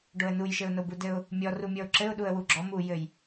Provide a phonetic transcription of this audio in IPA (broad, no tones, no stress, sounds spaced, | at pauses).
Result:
ɖ o ə̯ n u j ʃ ɘ ʊ̯ n o b u d ɘ ʊ̯ | mʲ ɔ r u mʲ ɔ ʊ̯ ǁ ɘ ʊ̯ ɗ u ə̯ w u ɡ͡ǁ ɔ m u j ɘ j